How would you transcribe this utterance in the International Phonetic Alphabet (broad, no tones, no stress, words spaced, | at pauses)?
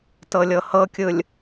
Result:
tɤlʲɤhɤkʲɯlʲ